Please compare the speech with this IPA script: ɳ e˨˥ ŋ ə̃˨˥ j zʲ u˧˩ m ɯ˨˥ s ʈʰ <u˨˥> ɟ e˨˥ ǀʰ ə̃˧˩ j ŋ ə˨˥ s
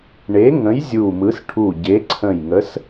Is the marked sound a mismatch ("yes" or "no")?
yes